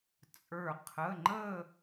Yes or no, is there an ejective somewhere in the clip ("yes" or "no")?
yes